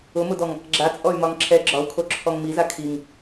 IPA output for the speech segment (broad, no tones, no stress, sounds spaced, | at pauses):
ʊ m ʊ d ɔ ŋ | ɡ͡ǁ a t͡sʼ ɔ y̯ m ɒ ŋ ǁʰ ɛ ɡ͡ǁ ɒ u̯ kʰ o ǁʰ ɔ ŋ m i z a kʰ i ŋ